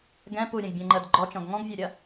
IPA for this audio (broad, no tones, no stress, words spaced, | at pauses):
ɡɛ̃ puɾʲɛ̃ɡbʲɛ̃ŋ͡ǃəːd ɡ͡ǃɔt͡ʃɔ̃ɡ ŋɔ̃ɡvʲœɾʲɐ